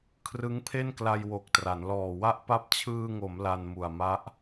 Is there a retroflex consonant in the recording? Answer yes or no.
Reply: no